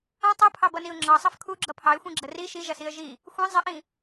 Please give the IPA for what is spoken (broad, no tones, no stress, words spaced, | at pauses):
ɐ̃ tˤupʰɑbʌniʊ̯ ŋ͡ǁɑsˤɐf kʰuɡ͡ǁʌ pʰɑɪ̯xʷĩɡ͡ǁə ri ʃiʒɐsiə̯ ʒi | xʷĩ zˤɪʔĩ